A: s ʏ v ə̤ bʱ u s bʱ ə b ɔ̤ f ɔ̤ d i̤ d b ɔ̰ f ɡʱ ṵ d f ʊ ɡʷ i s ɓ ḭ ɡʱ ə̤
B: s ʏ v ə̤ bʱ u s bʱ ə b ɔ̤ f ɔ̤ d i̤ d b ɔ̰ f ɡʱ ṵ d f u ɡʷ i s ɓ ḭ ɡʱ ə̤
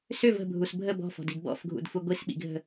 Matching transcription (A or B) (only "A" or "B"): B